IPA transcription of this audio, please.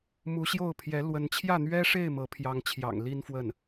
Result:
m u˧˥ ɕ j o˥˩ ʊ̯ pʰ j ɛ˧˥ l w ə˧˥ n t͡ɕʰ j ä˥˩ n̪ ɥ ɛ˥ ʂ e˥˩ ɪ̯ m ɤ˧˥ pʰ j ɑ˧˥ ŋ t͡ɕʰ j ɑ̰˨˩ ŋ l i˥ n f w ə˥˩ n

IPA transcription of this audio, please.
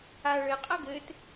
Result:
a ɭ ɘ qʼ ʌ ɡ ɘ t

